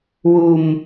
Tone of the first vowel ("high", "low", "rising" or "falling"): low